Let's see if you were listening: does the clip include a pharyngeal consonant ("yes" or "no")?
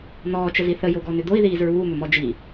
no